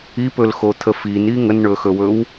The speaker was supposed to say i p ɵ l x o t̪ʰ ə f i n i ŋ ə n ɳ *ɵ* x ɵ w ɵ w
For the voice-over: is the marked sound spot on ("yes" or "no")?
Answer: yes